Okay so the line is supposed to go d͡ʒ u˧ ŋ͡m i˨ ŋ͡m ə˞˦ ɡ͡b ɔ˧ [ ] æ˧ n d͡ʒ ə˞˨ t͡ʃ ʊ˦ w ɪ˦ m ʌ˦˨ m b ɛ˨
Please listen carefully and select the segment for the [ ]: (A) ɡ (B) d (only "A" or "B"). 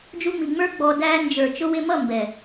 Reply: B